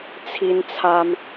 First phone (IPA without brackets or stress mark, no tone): t͡sʰ